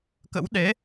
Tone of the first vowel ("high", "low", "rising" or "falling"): rising